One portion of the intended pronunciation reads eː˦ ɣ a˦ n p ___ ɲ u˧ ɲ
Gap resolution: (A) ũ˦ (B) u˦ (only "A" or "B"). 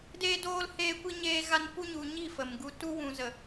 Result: B